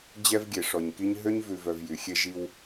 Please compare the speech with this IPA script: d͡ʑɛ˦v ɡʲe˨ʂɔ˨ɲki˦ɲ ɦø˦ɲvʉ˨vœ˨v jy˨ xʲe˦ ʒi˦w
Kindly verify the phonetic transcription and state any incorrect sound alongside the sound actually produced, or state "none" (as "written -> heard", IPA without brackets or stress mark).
none